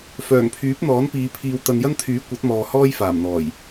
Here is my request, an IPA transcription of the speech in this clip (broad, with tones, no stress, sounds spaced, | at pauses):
f œː˨˩ ŋ pʰ yː˨˥ p̚ n̪ ɔː˨˥ n p iː˨˧ pʰ iː˨ w t̪ ɐ˨ n j ɐ˥ n t̪ʰ yː˨˥ kʷ ɐ˨˥ t̚ m ɔː˨ h ɔː˥ j f aː˨˩ m n̪ ɔː˨˩ j